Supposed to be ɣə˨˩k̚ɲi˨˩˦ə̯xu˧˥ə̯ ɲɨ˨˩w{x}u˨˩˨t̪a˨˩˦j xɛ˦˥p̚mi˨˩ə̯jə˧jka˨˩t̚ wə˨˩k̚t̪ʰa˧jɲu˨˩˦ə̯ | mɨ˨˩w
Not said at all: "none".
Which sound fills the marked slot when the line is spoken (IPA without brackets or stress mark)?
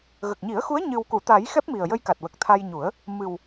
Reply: k